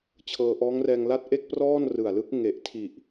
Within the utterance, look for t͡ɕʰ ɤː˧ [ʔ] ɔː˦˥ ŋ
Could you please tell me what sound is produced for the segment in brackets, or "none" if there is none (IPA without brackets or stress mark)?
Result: ʔ